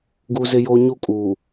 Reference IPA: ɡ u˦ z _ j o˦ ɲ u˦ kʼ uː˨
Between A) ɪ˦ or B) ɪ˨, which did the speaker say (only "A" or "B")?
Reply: A